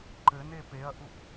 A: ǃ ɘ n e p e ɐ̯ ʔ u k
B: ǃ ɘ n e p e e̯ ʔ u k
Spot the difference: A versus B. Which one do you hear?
A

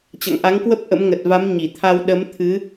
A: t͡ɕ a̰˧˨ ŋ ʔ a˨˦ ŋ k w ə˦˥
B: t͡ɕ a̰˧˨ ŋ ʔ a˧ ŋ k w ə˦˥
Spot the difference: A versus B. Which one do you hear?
A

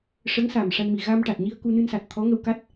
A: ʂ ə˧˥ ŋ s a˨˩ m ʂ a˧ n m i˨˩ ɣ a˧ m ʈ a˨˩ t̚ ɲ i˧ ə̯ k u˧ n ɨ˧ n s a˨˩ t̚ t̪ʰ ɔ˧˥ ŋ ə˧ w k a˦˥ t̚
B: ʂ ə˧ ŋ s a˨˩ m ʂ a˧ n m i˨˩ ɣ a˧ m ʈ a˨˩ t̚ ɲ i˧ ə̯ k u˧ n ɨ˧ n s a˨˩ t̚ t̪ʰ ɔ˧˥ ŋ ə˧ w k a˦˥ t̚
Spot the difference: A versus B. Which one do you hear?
A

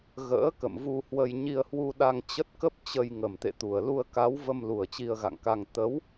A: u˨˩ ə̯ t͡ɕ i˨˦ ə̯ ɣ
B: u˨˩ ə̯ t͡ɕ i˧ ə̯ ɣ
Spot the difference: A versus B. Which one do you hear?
B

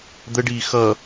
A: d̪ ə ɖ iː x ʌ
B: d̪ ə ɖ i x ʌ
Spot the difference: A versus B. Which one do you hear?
A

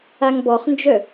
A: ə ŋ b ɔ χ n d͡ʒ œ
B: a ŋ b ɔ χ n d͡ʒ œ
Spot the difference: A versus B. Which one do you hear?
B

